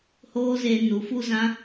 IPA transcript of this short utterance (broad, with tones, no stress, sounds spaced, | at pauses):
h oː˦ z eː˧ n u˨ f u˦ z ã˦